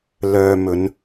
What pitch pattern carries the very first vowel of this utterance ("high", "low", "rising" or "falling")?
low